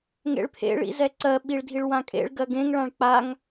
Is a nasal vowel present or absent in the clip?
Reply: present